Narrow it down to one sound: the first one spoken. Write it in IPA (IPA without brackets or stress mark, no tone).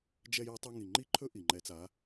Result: d͡ʒ